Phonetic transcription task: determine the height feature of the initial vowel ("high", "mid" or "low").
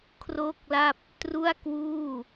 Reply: mid